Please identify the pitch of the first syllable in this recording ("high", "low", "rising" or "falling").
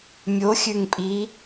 rising